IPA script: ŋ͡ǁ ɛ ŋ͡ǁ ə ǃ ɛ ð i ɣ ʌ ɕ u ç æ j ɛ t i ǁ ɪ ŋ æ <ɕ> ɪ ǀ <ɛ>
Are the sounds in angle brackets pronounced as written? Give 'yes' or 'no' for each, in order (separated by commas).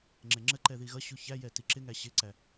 yes, no